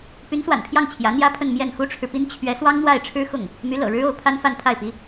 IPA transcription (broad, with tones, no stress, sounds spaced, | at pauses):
p y˧˥ n s w a̰˨˩ n pʰ j ɑ˥˩ ŋ t͡ɕʰ j ä˧˥ n̪ j ä˥ pʰ ə˥˧ n m j ɛ˥˩ n x u˥ ʈ͡ʂʰ ɻ̩˨ p i˥ n t͡ɕʰ ɥ ɛ˧˥ s w ɑ˥ ŋ n̪ w a˥˩ ɪ̯ ʈ͡ʂʰ ɻ̩˥ x ʊ˥˩ ŋ | m y˧˥ l ɤ̰˨˩ ɻ ɻ̩˥ o˥˩ ʊ̯ pʰ a˥ n f a˥˧ n pʰ a˥˩ ɪ̯ p i˧˥